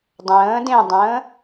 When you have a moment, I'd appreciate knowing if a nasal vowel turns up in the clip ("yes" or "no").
yes